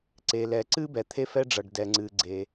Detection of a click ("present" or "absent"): present